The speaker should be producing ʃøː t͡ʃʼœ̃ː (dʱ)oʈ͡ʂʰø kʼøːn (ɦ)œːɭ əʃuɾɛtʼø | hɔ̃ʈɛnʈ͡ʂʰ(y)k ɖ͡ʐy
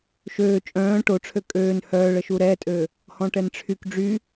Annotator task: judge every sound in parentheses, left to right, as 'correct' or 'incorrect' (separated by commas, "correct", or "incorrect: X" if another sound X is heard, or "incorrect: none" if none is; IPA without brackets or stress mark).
incorrect: ʈ, incorrect: h, correct